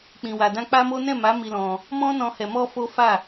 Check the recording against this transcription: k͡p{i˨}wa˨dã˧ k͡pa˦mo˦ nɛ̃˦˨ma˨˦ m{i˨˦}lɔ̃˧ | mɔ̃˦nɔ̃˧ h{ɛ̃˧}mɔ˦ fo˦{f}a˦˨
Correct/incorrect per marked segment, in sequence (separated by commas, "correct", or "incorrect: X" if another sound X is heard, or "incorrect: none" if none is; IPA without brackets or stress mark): incorrect: ĩ˨, incorrect: i˧, incorrect: ɛ˧, correct